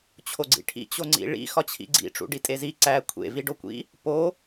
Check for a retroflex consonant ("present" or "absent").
present